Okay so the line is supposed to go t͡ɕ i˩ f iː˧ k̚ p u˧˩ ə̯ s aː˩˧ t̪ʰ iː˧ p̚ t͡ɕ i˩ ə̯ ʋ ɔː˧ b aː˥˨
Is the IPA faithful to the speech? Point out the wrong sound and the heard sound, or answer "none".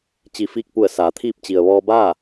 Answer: none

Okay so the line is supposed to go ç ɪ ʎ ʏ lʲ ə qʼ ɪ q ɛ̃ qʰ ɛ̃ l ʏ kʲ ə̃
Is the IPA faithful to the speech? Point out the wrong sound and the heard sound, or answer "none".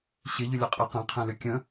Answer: ç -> ɕ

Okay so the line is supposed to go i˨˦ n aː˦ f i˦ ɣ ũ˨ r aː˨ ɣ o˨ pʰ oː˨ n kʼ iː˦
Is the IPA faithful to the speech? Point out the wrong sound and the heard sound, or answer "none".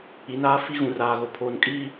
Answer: none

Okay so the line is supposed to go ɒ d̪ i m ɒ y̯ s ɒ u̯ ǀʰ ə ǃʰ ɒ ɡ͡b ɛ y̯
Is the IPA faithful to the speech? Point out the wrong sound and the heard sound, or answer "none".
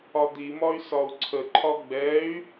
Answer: none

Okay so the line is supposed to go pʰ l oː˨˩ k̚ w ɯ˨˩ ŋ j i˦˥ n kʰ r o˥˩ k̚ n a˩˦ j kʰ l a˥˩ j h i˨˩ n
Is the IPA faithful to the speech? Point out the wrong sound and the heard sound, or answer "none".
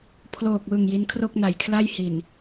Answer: none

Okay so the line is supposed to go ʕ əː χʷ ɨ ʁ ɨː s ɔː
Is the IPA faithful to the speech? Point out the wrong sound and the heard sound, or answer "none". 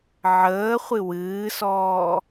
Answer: ʁ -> w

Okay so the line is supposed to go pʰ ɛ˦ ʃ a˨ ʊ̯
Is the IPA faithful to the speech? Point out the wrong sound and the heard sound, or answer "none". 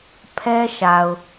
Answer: none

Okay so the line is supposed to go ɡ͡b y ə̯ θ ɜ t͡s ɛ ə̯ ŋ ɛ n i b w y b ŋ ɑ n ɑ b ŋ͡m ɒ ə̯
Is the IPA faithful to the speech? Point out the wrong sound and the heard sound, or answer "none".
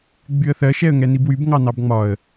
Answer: t͡s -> ʃ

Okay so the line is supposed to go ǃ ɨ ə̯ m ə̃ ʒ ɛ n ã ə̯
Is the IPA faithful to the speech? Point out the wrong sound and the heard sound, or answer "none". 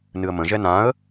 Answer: ǃ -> n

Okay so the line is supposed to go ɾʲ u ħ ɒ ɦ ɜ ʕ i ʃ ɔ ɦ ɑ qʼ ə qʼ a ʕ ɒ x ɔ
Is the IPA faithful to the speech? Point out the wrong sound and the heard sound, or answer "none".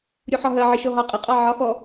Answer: a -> ɑ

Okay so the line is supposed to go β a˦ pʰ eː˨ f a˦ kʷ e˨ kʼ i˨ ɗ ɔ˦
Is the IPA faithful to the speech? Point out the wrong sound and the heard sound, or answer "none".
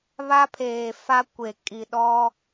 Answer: none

